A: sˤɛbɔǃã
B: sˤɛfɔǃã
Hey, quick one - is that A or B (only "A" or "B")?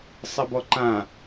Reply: A